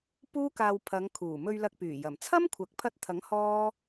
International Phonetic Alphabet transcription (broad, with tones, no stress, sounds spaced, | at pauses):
p uː˥ k aː˧ w pʰ ɐ˨˧ ŋ kʰ uː˨˩ m ɵ˧ ɥ l ɐ˧ k̚ p yː˨˩ j ɐ˨˩ m t͡sʰ ɐ˥ m kʷʰ ɐ˨˥ k̚ pʰ ɐ˧ t̚ t̪ʰ ɐ˨˥ ŋ h ɔː˥